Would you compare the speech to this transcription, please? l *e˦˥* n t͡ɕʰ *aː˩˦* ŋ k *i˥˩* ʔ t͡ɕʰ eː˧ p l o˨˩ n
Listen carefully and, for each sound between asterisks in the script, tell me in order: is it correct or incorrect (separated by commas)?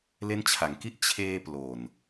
correct, incorrect, correct